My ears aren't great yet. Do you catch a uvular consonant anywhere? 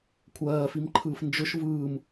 no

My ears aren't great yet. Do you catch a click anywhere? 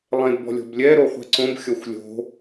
yes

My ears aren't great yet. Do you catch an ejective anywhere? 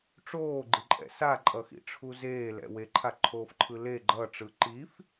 yes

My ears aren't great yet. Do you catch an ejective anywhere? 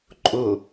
yes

